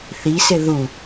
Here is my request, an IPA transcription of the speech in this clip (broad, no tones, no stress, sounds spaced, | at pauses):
θ i s ɪ ð u